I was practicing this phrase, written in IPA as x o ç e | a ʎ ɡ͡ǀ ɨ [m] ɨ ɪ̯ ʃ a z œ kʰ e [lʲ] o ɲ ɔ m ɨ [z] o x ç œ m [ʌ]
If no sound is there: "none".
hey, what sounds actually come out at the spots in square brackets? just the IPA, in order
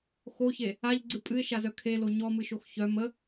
pʼ, l, ʃ, ə

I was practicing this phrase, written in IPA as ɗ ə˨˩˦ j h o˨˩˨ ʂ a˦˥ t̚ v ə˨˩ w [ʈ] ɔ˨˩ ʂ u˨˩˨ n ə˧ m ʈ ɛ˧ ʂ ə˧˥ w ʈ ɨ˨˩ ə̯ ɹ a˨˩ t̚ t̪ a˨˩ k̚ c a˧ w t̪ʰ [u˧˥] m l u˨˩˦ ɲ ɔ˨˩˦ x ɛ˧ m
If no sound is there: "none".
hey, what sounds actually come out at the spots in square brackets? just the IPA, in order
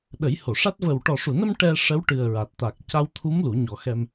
ʈ, u˧˥

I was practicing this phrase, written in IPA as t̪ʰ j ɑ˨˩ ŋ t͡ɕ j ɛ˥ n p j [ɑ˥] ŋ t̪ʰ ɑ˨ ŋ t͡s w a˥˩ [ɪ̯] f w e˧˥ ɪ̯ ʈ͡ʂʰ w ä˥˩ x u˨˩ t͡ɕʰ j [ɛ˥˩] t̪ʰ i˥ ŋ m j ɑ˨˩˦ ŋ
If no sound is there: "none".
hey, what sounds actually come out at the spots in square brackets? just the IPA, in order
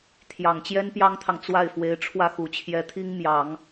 ɑ˥, ɪ̯, ɛ˧˥

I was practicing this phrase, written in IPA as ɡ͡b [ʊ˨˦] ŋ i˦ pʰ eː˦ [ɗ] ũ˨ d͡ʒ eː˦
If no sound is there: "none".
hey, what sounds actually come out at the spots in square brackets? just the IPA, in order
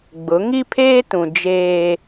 ʊ˨˦, t

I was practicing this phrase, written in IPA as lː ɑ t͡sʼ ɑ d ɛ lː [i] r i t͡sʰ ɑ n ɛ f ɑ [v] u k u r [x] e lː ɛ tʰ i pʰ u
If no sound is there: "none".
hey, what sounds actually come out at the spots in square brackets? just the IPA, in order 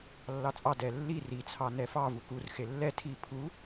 i, v, x

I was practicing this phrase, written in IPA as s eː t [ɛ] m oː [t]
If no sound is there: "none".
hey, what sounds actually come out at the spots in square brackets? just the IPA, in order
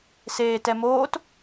ɛ, t

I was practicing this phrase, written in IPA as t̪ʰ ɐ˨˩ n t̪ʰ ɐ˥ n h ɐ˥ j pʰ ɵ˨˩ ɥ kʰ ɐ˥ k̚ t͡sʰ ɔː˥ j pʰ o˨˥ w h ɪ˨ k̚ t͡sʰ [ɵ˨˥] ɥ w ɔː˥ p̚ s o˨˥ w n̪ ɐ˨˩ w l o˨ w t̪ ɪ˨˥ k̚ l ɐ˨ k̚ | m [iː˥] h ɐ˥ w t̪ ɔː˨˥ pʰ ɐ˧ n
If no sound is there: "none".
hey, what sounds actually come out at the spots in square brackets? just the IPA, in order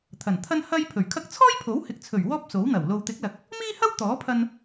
ɵ˨˩, iː˥

